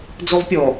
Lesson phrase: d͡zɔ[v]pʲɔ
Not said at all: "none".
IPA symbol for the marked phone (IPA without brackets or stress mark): v